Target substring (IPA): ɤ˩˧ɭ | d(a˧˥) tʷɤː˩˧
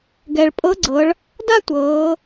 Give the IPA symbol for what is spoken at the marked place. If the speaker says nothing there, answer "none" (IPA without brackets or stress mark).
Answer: a˥